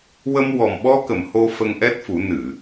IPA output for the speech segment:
w ə˧ m w ɔ˨˩ m ɓ ɔ˧ k ə˨˩˨ m h o˧ f ə˧ ŋ ʔ ɛ˦˥ t̚ f u˨˩˦ n ɨ˨˩˨

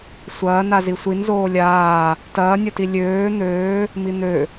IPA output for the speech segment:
sʷ ɐː n a z i sʷ i n z oː lʲ aː | t ɐː nʲ ɐ t i lʲ øː n̪ øː | m i n̪ ø

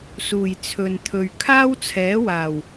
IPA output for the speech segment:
s uː˨˩ j t͡sʰ ɵ˨ n t̪ʰ ɵ˨ ɥ kʰ aː˥ w t͡sʰ ɛː˨˥ w aː˨˩ w

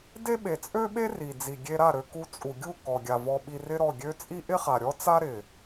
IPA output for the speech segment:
d e˦ ɓ e˨ t͡sʼ ø˦ ɓ e˦ r i˨ d͡z i˨ ɡʲ e˧ ɾ a˦˨ ɾ ø˧ k u˧ t͡sʼ u˨ ɡʲ u˦˨ k ɔ˨ ɡʲ a˨ v ɔ˧ ɓ i˧ r ɪ˦ ɾ ɔ˦˨ ɡʲ ø˦ t͡sʼ i˦ ʔ ɪ˦ χ a˨ ɾʲ ɔ˦ t͡s a˦ ɾ ɪ˨

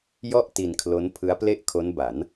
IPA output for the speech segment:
j ɔ˥˩ ʔ t i˧ n kʰ l o˦˥ n pʰ ɯ˦˥ a̯ p l e˥˩ ʔ kʰ o˦˥ n b a˩˦ n

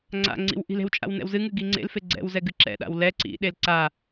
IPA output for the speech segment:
ŋ͡ǀ a̰ ŋ͡ǀ ḭ w ʔ i̤ l e̤ w t͡ʃʼ a̰ w n ɛ̰ w z ɨ ŋ ɨ ɡ i ŋ͡ǀ ḛ l f e ɡ͡ǀ ɛ̰ w z ɛ ɡ ɨ ǁ ɛ̰ ɗ a̰ w l ɛ ǀ ḭ ɗ e l ǀ a

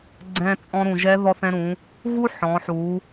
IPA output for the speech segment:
ɡ͡ǀ ɛ̃˧ t͡sʼ ɔ̃˧ ɾ ũ˩ ʒ ɛ˧˥ ð ɔ˧ θ ɛ̃˧ ɾ ũ˩˧ | ɣ u˥ ħ ɔ̃˩˧ ħ u˩˧

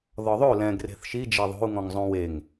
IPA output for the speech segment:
ð ɔ ðˤ o l ɛ̃ ɡ r e̤ θ ʃ i d͡ʒ e ðˤ o̤ u̯ ŋ ɔ̃ ŋ zˤ õ w e ŋ

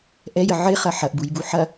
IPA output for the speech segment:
ʔ ɛ j ə ʕ ɪ χ ɐ ħ ɐ ʔ b u j b u ħ ɐ

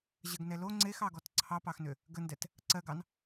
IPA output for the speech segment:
ʑ ə ɡ n ɛ l o ŋ͡ǀ e x ɑ ɡ ɔ t ǀʰ ɑ p ɑ x n ʏ | ɡ ə n d ɛ t | ǀ ɜ ɡ ɑ n

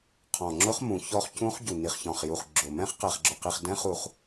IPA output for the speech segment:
qʰ ɔ̃˨˩ ŋ͡ǁ ʊ˦˥ χ m ũ˨˩ ç ɔ˦˥ χ c ũ˦˥ χ ɟ u˨˩ n i˨˩ χ ç ɔ̃˨˩ χ j u˨˩ χ ɡ͡ǁ ʊ˨˩ m ɛ̃˦˥ χ q ɛ˨˩ χ ɡ͡ǁ ʊ˨˩ q i˨˩ χ d ɛ̃˦˥ χ u˨˩ χ

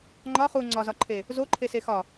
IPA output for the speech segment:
ŋ͡ǃ ɒ χ u ŋ͡ǀ ɒ z ɒ ǃʰ e | z o ǃʰ e s e x ɒ

